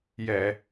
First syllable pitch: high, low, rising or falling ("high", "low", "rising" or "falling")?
low